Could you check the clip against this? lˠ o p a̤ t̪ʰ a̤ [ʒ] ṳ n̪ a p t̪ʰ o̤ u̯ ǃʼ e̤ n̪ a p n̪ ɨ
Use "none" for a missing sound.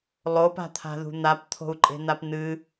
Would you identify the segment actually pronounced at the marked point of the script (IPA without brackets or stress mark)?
ð